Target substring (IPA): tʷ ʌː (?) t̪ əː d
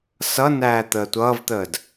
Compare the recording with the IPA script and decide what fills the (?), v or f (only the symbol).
v